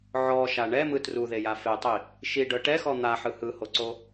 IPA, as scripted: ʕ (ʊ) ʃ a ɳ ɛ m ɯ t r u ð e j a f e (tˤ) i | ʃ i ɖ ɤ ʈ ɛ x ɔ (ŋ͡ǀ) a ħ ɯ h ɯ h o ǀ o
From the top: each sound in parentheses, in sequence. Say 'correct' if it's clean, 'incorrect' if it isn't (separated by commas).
incorrect, correct, incorrect